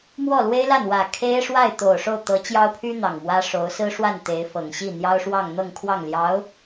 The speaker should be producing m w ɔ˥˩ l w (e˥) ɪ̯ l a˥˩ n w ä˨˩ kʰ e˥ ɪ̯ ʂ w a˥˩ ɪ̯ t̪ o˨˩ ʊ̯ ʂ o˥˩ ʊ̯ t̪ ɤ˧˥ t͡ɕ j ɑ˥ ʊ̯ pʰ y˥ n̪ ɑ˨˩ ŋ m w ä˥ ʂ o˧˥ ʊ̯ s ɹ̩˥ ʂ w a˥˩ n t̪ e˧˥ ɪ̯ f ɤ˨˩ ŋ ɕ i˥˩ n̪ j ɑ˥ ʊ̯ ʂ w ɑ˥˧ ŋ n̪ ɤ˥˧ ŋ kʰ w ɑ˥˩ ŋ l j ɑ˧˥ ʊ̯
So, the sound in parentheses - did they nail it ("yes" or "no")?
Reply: yes